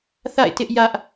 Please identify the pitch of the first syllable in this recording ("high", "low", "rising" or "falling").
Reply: falling